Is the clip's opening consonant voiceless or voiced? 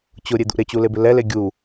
voiceless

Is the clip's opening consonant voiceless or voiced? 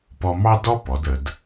voiceless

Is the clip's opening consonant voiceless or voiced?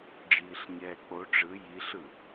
voiced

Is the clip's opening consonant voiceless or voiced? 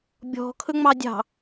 voiced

